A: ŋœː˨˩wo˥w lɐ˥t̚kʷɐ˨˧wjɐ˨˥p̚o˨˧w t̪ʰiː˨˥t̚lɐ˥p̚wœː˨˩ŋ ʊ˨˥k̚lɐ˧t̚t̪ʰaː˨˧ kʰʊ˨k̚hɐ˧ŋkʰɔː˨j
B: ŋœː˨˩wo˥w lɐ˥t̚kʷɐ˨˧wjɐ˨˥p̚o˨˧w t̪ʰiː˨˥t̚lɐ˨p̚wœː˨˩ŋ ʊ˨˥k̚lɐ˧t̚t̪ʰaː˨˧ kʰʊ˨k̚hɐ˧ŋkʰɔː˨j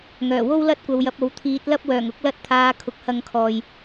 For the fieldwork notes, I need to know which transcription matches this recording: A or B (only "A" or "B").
A